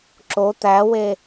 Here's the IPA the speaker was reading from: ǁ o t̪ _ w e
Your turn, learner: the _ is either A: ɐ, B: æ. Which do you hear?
B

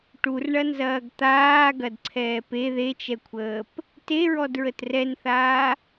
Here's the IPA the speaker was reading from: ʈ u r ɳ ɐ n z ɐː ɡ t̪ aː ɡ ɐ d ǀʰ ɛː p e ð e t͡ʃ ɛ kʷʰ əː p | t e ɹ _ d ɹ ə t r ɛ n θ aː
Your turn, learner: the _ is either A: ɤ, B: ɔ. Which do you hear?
B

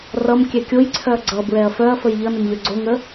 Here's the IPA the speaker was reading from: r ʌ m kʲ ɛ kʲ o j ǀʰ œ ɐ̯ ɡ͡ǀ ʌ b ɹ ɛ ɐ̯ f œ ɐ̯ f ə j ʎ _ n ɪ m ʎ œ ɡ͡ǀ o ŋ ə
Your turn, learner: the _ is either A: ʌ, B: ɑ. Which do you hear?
A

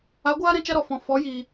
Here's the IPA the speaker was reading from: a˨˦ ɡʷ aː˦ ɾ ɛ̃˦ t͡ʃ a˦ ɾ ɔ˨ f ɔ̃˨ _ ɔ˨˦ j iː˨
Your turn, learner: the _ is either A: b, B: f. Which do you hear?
B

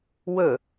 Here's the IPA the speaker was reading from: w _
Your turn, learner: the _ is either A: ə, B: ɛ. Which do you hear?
A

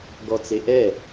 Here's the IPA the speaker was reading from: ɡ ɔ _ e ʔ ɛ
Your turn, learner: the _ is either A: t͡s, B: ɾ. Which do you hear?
A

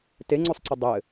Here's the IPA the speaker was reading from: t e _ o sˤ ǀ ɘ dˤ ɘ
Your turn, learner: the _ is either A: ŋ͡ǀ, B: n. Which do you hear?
A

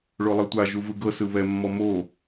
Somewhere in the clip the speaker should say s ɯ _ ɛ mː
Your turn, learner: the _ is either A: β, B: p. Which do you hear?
A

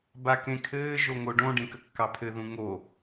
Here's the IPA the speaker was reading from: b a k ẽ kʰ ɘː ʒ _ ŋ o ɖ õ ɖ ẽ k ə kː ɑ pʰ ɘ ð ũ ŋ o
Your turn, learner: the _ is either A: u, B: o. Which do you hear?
B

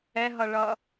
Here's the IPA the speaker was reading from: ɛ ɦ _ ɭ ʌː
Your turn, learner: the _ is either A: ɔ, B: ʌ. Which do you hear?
B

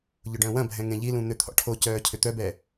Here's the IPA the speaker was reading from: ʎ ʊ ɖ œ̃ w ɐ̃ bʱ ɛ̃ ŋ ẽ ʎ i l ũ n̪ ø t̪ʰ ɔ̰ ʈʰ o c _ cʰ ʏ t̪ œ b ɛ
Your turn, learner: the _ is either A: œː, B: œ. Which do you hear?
A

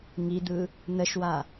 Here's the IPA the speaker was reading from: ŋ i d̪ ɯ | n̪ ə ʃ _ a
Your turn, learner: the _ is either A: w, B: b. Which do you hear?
A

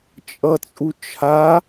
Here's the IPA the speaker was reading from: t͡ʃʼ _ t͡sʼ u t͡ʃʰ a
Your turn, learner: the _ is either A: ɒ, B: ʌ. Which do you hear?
B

